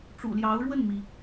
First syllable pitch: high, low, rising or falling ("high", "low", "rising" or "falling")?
low